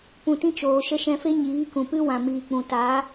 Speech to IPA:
p ũ˨ t ĩ˦ t͡ʃ oː˧ ʃ ə˧ ʃ ɛ̃˧ f e˦ ɲ iː˨˦ k ũ˨ p ɨ˦ w ã˨ m iː˨ k͡p ũ˨ t a˨˦

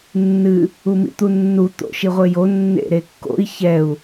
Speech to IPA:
nː ɨ | u m ḭ t̪ u nː u t̪ o̰ ʃ i ʁʷ e j o nː ḛ ɾ e kː o̰ i̯ ç ɛ u̯

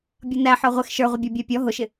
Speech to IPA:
bʲ ʌ n æ ħ ɔ ʁʷ ɪ x ʃ ə˞ ʁʷ ɪ bʲ ɔ bʲ æ pʲ ɔ ɦ ʊ ʃ ɪ

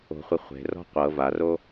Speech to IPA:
o̤ χʷ i χʷ e̤ r ɔ̤ qʷ ɤ v a r o

